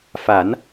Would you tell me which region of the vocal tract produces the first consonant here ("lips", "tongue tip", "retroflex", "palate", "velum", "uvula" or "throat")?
lips